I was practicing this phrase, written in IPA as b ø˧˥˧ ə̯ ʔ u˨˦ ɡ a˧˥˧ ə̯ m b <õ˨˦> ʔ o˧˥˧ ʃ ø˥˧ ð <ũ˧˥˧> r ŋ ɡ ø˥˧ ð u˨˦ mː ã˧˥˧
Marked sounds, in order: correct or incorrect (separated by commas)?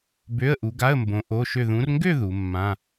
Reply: correct, incorrect